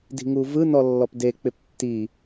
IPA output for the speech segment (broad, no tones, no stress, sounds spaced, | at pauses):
d i̤ ŋ u v ɯ n ɔ lː ɔ p d e k͡p ɪ p tː i